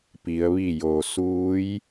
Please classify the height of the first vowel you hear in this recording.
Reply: high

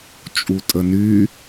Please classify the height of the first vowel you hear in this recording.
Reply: high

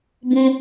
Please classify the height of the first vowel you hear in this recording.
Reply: high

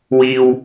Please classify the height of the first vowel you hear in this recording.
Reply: high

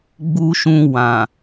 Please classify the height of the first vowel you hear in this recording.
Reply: high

